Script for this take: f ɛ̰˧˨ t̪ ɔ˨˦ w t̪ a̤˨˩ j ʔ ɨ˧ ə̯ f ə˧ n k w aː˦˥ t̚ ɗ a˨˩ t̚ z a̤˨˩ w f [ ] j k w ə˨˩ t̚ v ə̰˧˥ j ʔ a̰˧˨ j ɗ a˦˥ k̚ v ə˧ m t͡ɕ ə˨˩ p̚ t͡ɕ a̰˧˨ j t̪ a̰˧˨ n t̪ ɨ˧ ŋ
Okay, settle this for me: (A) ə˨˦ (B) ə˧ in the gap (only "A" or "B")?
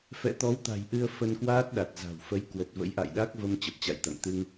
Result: A